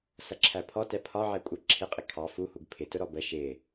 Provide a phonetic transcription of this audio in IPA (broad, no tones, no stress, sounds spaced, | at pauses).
s ʌ ǁʰ æ pʰ ɔ t ɛ pʰ ɒ ʕ ɛ kʷʼ ə ǁʰ ɪ qʼ ɪ kʰ ɑ f u h u ɡ pʰ ɪ t ʊ ɾ ɔ b ə ʃ ɪ